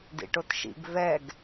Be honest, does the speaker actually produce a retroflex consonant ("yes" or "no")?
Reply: yes